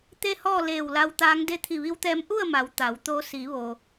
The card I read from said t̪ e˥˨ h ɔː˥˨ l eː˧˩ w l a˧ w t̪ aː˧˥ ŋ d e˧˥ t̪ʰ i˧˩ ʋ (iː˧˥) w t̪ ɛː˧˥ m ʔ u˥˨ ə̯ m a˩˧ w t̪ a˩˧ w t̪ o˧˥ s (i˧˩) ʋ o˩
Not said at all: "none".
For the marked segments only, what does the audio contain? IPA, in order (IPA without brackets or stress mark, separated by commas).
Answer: i˧˥, i˩˧